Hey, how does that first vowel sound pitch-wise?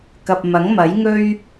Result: low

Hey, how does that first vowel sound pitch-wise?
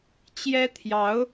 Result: high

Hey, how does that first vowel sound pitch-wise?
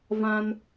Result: high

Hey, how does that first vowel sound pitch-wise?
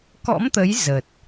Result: rising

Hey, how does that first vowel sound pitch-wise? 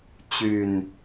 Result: low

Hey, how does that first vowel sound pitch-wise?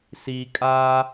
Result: low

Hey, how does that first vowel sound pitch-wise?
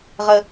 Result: high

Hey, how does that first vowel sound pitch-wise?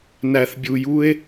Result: low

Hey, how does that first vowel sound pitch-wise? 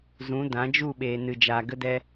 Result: rising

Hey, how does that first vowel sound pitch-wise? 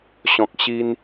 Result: low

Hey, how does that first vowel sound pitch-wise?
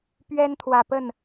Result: high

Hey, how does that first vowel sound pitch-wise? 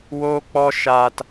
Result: high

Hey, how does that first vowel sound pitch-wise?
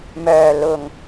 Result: low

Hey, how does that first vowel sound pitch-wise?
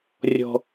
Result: low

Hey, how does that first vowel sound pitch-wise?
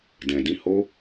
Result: low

